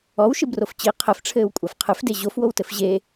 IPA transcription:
ɔwʃɨbrof t͡ɕi qʰɘfʈ͡ʂʰɘːwkʷʼaf qʰɨfde ʑofwowtɘf ʑe

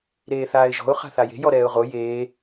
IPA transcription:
ɾeːθaːɪ̯ʒɔ̤ʊ̯ χa̤θaje̤ jɔɾɛːʊ̯ʁo jeː

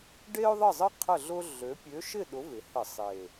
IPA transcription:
ɖe˥ʊ̯ðˤə˥˨zˤə˥ qʰə˥˨ɮʊ˥ɮø˨˥ pʲø˨˥ʃɪ˥˨ ɗʊ˨˥vɪ˩˧hə˧˩˧sˤe˨˩

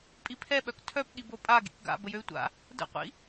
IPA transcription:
pʼipʰɛɓœk tʰœpɠi bopʼa ɡḭkɡa̰ bəjøy̯tʷa̰ | də̰qʷḭ

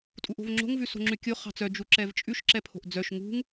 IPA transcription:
tʼuʔo̤vŋ͡ǁo̤ŋ vʉso̤ŋ͡ǁʉkʲo χɑ̤t͡sœ d͡ʒuǁɛvt͡ʃʼʉʃ ǁɛpʰo̤ʔd͡zœʃ ŋṳŋ

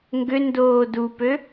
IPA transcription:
ŋɡʏ ndoːdupø

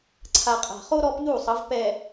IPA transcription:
ǀʰa˨qʼa̤˨χo˦ ɾɔ˦pʎu˦˨sˤʌ˨˦v pɛ˨

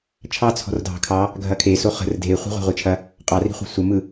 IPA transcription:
t͡ʃʰɑ t͡sʰɔ̤rdʱɑ̤kʰɑ | ɡʱɐkʰe soχə̤r dʱeχʷi̤ ʁʷɑ̤ʁʷit͡ʃʰɐ | qʼɑri̤ χʷə̤sʷəmɯ

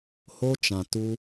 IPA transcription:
ho˦t͡ʃã˨ tu˦

